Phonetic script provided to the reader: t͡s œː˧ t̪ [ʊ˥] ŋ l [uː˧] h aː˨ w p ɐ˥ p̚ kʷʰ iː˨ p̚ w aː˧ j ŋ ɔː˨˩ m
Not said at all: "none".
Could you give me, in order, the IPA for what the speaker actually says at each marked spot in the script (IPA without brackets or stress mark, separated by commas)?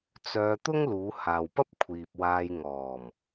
ʊ˥, uː˨˧